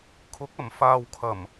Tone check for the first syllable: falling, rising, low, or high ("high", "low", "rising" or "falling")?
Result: rising